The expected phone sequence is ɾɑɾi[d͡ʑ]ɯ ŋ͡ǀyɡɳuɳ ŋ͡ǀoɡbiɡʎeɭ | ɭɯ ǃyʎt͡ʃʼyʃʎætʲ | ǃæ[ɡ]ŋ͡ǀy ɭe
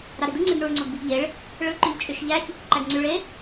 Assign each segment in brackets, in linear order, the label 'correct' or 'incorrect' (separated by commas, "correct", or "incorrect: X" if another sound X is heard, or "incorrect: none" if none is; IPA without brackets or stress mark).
incorrect: d, correct